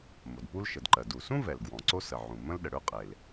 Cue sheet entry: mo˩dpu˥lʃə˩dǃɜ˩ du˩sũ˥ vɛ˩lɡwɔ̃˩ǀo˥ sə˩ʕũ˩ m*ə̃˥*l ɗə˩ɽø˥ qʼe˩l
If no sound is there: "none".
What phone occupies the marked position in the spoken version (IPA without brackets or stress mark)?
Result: ə̃˥